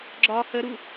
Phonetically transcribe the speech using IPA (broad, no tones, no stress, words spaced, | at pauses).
ɡ͡ǁɒ həɾu